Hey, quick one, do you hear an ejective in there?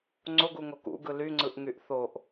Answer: no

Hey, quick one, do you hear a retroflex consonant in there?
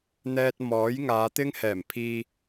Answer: no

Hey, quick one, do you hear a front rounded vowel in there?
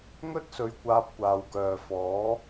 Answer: yes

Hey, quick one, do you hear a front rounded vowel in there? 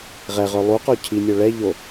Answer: yes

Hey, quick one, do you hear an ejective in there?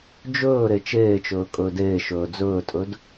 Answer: yes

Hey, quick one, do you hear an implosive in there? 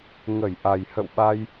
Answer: yes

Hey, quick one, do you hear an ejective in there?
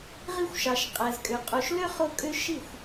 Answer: yes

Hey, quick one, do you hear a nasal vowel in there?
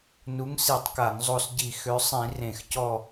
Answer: yes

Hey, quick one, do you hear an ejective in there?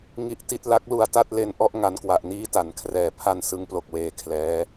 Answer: no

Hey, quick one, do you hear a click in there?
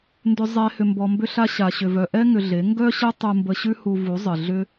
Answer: no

